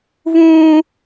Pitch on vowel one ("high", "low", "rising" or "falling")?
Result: high